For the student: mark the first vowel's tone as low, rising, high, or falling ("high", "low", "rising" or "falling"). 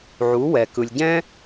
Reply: rising